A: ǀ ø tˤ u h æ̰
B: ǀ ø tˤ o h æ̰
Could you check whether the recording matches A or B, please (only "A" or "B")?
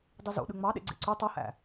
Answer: B